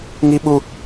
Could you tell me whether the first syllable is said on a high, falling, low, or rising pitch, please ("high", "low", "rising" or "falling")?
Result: high